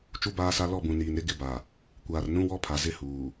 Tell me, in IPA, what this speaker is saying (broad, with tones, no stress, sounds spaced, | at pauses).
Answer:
t͡ʃ u˦ b aː˦ s a˦ l ɔ˦˨ b ũ˨ n iː˨ n ɾ ɪ˦ ɡ ɪ˦ b a˨ | kʷ aː˨ r n ũ˦ w ɔ˦ pʰ a˨ z ɪ˦ h uː˨